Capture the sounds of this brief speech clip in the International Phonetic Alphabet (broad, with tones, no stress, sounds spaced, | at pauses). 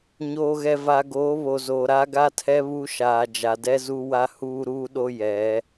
ɲ oː˨ ɣ ɛ˨ v a˨ ɡ oː˨˦ β o˨ z oː˨ ɾ a˦ ɡ a˦ tʰ ɛ˦ β u˦ ʃ aː˨ d͡ʒ a˨ d ɛ˦ z u˦ w a˦ h uː˦ ɾ uː˦ ɗ o˦ j ɛ˨˦